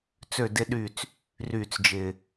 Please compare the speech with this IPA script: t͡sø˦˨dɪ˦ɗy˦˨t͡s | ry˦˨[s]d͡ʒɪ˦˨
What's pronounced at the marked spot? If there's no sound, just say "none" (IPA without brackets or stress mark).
t͡s